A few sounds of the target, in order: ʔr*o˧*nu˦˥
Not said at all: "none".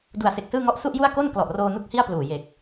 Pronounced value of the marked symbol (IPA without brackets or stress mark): oː˧